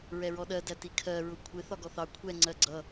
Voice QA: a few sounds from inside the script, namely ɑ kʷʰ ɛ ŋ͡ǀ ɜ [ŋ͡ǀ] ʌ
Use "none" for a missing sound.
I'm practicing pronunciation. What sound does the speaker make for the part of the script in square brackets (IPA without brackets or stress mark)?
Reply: ɡ͡ǀ